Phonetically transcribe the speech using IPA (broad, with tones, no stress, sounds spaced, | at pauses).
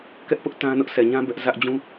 k ɛ˦ ʔ p ʊ˦ ʔ t ã˦ n ʊ˦ ʔ s ɛ˨ ɲ ã˦ b ɛ˦ ʔ z ä˦ ʔ d͡ʑ ũ˦